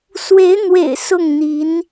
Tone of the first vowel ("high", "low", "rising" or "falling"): rising